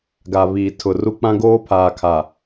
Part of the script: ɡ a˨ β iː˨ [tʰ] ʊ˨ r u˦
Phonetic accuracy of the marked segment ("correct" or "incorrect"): correct